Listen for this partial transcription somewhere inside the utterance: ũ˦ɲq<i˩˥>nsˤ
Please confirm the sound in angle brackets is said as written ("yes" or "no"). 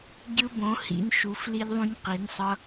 yes